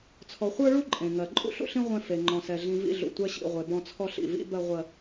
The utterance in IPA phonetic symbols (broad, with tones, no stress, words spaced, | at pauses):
t͡sʰɔ˨χʷə˞˦ɭu˦ ǃʼẽ˨ ŋɜ˨ ǃʼṵ˦ɬṵ˦ɬĩ˦ ʁʷẽ˦fe˨ ŋ͡ǃɔ̃˨sɛ˨ ɮĩ˨ vḭ˦ɮṵ˨ tʷɛ˦ɕḭ˦˨ʁʷe˨ bɔ̃˦t͡sʰɔ˦ɬḭ˨ vḭ˦ bɜ˦ʁʷɜ˦